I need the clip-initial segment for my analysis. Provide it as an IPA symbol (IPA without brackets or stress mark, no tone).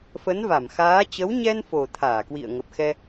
f